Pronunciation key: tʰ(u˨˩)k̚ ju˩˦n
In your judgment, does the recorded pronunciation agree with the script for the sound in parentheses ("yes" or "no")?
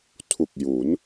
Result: yes